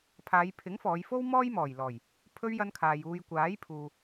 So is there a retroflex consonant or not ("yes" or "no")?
no